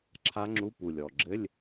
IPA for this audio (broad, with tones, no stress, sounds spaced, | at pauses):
ǁʰ a˦˥ ŋ͡ǁ u˧˥˧ p u˨˩ lʲ ɔ˨˩ ɡ͡ǁ ɘ˧˥˧ lʲ